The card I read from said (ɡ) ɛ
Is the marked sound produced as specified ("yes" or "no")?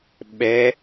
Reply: no